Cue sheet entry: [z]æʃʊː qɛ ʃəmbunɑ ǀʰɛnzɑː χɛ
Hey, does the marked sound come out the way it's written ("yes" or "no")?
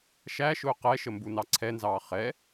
no